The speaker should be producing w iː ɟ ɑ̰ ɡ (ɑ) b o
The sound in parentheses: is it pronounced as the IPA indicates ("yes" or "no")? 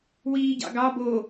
yes